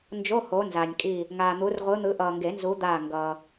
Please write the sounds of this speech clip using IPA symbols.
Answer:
n d͡ʒ o˧˥˧ h o˨˦ n z a˨ nʲ kʼ i˦˨ | ŋ aː˨ n̪ u˨˦ r ʁʷ ɯ˨˦ n̪ ɯ˨˦ ʔ ʌː˨ ŋ ɡ e˨˩˦ n z u˨˦ d̪ aː˦˨ ŋ ɡ ʌː˨

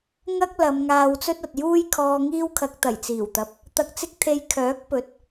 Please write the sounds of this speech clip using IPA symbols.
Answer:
ŋ ɐ˥ k̚ l ɐ˨˧ m ŋ aː˧ w t͡s ɵ˥ t̚ ɐ˨ t̚ j uː˥ j kʰ ɔː˧ ŋ iː˥ w kʰ ɐ˧ k̚ t̪ ɐ˨˩ j t͡s iː˨˩ w t̪ ɐ˨ p̚ | t̪ ɐ˧ k̚ t͡s ɪ˥ k̚ t̪ʰ e˧ j kʰ œː˨˥ k̚ p ɵ˨˥ t̚

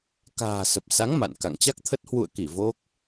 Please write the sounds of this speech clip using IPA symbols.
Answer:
k a̤ː˨˩ s ə˨˩ p̚ s a˨˦ ŋ m a̰˧˨ n k a̰˧˨ ŋ t͡ɕ a˦˥ k̚ t̪ʰ ə˦˥ t̚ h w ṵ˧˨ ə̯ k i˧˩ v o˦˥ k̚

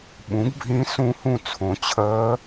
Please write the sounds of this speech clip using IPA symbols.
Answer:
ɓ ũ˩˥ ɡ bʱ ĩ˧˥ s ũ˧˥ h ũ˦˨ t͡sʰ õ˩˧ t͡ɕʰ əː˧˥

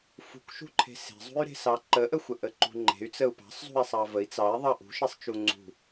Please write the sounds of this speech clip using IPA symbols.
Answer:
f ṳ k ʃ ṳ ǃʰ e̤ s e̤ zˤ ṳ y̯ ɾ e̤ s ɑ ǃ ə ʔ ə xʷ ə ʔ ə ǃ ṳ ŋ͡ǃ e̤ y̯ t͡s ə u̯ p ɑ̤ sˤ zˤ ṳ i̯ sˤ ɑ v ə i̯ t͡s ɑ i̯ ðˤ ɑ ʔ ṳ ʃ e sˤ t͡ʃ u ŋ͡ǀ ṳ

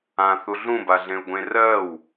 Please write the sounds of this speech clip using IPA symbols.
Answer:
ã θ u ɮ ũ b a ɮ ẽ u̯ ɡʷ ẽ r ɜ w

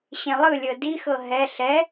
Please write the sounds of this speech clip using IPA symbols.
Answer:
ɕ ẽ lˠ ɯ lʲ ɤ d i x ɤ ɦ ɛ ɬ ɛ

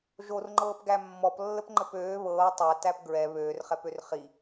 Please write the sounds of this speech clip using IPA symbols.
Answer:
ʒ o r ŋ͡ǃ ɤː p ɡ æ mː ɔ p lː ə p ŋ͡ǃ ə p øː β ɤː tˤ æ t æ p ɡ ɹ ɛ β øː r χ ɛ p ø r χ i

